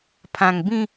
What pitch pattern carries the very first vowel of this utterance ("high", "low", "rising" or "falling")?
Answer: low